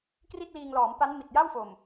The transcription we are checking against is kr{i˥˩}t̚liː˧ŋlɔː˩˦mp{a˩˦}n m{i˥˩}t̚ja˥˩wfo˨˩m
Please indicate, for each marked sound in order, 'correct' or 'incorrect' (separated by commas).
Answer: correct, incorrect, incorrect